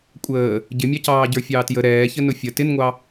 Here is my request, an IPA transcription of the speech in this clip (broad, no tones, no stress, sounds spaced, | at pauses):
kʷʼ əː | ɟ ɪ mʲ ɑ c ɑː ɟ ə˞ fʲ ɑː t j ə ɾ ɛː ç ə n ʊ fʲ ə t ɪ n ŋʷ ɑ